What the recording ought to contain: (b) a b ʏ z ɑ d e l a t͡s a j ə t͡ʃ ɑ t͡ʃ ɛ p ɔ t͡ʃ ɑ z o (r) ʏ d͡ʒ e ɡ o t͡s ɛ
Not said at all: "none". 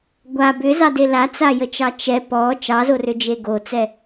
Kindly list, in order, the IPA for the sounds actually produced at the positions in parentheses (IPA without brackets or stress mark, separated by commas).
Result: ɡʷ, r